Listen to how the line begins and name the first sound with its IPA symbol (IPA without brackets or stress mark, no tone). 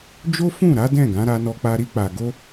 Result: d͡ʒ